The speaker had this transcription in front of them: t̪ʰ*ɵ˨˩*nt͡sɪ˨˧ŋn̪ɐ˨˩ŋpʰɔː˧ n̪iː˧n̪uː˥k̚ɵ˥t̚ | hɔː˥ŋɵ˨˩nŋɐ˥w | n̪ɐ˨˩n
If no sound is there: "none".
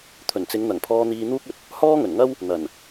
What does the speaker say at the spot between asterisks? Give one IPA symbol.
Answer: ɵ˨˩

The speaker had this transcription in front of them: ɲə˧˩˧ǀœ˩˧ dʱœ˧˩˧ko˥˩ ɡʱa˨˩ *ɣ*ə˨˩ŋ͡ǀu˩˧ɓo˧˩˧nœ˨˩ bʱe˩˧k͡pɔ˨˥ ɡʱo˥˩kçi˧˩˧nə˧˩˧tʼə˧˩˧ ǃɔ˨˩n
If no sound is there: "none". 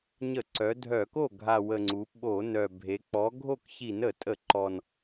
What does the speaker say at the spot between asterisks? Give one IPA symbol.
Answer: w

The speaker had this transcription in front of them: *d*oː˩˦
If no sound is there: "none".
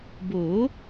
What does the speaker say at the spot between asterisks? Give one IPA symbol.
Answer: b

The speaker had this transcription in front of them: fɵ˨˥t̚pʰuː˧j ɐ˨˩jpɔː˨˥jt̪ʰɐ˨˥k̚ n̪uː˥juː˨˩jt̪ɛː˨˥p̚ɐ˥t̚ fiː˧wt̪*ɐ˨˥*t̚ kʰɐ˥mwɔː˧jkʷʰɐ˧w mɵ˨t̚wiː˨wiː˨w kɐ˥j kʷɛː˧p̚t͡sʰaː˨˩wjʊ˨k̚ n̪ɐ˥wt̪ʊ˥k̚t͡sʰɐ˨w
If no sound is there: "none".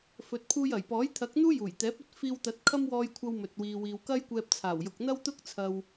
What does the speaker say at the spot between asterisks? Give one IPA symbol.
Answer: ɐ˨˥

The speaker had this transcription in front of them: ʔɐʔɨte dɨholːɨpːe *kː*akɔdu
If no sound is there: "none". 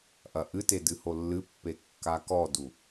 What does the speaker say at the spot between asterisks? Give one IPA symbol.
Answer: kː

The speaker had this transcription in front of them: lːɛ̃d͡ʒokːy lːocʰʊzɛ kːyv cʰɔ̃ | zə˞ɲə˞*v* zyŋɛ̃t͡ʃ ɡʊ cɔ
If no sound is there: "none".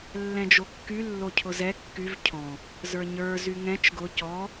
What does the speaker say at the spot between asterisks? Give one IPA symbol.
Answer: none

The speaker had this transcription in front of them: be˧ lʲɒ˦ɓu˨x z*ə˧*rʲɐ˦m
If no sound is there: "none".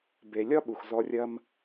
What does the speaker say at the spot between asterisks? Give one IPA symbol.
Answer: ɔ˧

